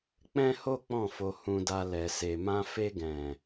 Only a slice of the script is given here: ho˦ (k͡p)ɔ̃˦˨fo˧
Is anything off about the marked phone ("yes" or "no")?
no